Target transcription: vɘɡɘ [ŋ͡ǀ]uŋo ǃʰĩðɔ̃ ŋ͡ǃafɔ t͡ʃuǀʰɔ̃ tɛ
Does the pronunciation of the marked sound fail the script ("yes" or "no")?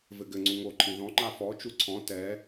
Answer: no